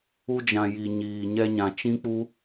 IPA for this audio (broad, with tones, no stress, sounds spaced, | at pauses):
u˧ d͡ʒ ã˨ j i˨ ɲ iː˨ ɲ ɛ˧ ɲ ã˨ t͡ʃ ĩ˦ k͡p u˦